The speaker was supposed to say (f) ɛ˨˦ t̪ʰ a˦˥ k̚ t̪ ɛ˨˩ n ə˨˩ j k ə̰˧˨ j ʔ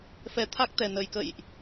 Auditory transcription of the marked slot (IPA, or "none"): f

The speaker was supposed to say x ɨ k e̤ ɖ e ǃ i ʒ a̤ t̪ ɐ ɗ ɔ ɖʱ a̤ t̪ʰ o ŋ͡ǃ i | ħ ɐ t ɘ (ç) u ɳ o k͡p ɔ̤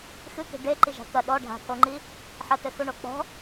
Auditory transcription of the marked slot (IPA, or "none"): x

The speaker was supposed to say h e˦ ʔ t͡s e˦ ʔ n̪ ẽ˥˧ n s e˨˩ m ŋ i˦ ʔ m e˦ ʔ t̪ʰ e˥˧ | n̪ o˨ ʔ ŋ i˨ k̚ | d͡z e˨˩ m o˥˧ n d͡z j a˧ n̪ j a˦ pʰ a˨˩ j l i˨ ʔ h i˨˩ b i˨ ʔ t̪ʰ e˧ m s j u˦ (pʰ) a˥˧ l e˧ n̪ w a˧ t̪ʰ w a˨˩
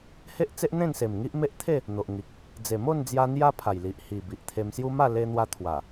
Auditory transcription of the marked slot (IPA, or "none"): m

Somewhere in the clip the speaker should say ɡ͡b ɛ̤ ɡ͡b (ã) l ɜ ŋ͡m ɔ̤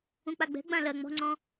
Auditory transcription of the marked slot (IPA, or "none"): ã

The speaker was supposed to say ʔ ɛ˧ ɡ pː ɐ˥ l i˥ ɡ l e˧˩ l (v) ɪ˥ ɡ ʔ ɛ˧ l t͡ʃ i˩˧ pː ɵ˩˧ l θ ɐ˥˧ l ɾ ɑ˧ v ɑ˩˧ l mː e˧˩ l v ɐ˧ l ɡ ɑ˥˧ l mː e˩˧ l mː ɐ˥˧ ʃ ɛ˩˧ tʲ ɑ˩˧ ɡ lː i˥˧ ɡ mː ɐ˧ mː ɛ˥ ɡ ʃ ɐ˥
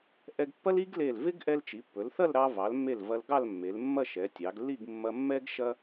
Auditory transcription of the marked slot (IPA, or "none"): v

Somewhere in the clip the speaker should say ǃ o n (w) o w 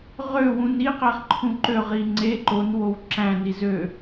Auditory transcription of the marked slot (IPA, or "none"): w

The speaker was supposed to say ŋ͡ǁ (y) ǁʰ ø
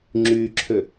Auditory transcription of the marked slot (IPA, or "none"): y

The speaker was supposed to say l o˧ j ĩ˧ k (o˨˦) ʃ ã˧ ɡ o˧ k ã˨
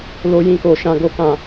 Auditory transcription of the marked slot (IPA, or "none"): o˨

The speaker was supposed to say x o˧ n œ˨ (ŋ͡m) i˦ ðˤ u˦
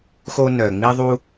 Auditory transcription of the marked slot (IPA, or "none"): ŋ͡m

